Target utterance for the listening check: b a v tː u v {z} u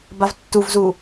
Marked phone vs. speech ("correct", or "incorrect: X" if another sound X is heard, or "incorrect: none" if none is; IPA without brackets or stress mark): correct